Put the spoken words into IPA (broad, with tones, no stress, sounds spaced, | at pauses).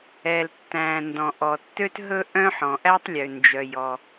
ɛ˩ l tː æ̃˩ n d ɔ̃˩ ʔ ɔ˩ tː ø˥ t ɦ ɵ˥ ʔ œ̃˥ ħ ɔ̃˩ ʔ æ˥ tˤ lʲ ø˩ n d͡ʒ œ˩ j ɔ˩